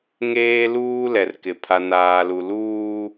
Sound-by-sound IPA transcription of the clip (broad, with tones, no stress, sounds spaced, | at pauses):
ŋ eː˦ l uː˦ l ɛ˨ r k ɪ˨ pʰ a˨ n aː˨ l u˨ l uː˦